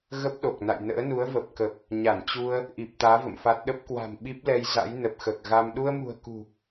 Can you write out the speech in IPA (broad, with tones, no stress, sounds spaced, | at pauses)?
ɣ ə˦˥ p̚ ɗ o˨˩ k̚ n a̰˧˨ j n ə̰ː˧˥ n u˨˦ ə̯ v ə˨˩ p̚ k ə˨˩ p̚ | ɲ a˧˩ n t͡ɕ u˧ ə̯ | ʔ i˨˩ p̚ t̪ aː˨˦ v ə̰˧˨ m f a˦˥ t̚ ɗ ə˦˥ p̚ k w a̤˨˩ m ɓ i˦˥ p̚ l ɛ˧ j z a̰˧˥ j n ə˨˩ p̚ x əː˨˩ k̚ ɣ a˧ m ɗ u˧ ə̯ m ṳ˨˩ ə̯ k ṳ˨˩